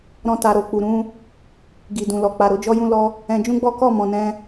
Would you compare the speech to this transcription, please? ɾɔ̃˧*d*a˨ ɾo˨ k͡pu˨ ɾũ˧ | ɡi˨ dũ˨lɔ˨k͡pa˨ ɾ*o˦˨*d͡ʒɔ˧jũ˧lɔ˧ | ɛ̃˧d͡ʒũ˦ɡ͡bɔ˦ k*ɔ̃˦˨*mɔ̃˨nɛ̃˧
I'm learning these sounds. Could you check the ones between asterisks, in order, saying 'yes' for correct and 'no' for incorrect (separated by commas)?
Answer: no, no, no